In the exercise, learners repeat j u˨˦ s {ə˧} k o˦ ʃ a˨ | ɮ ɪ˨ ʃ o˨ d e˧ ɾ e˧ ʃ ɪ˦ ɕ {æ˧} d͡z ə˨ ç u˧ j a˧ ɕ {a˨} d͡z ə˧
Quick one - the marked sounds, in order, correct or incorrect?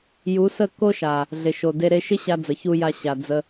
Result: incorrect: ə˦˨, incorrect: a˧, correct

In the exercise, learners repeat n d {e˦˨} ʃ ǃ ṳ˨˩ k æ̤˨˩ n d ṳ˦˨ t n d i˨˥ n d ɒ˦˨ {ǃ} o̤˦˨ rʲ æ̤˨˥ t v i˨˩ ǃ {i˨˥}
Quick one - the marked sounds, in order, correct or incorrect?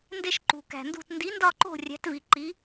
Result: correct, correct, correct

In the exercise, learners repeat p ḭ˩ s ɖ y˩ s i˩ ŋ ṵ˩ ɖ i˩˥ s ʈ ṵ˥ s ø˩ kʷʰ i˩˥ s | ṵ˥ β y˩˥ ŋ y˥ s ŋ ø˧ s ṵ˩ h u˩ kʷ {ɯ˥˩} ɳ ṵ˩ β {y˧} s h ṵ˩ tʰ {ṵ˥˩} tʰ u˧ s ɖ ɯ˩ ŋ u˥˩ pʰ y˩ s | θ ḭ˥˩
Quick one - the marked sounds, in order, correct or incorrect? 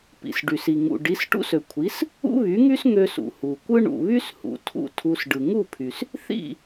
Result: incorrect: ɯ˥, incorrect: y˥, correct

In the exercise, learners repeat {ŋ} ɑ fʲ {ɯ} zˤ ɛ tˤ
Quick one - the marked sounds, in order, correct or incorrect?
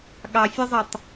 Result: incorrect: ɠ, correct

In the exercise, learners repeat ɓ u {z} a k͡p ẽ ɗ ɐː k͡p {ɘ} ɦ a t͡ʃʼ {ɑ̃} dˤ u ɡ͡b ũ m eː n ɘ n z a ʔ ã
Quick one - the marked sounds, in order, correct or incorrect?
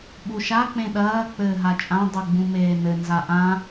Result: incorrect: ʃ, incorrect: ɘː, incorrect: ã

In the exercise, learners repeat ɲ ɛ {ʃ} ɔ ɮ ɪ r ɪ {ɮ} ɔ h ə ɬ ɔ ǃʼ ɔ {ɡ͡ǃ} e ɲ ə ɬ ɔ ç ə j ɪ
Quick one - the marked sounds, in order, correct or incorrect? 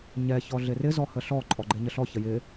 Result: incorrect: ç, incorrect: z, correct

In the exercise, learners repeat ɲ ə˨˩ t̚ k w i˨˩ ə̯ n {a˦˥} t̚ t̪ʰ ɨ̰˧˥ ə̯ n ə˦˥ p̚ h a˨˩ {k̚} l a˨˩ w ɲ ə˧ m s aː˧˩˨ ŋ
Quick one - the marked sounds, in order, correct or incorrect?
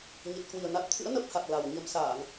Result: incorrect: a˨˩, correct

